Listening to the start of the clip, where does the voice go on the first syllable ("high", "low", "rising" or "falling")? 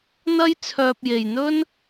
high